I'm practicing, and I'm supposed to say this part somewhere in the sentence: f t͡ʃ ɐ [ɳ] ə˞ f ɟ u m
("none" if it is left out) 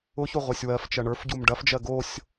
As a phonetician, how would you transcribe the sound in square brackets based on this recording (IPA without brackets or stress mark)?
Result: ɳ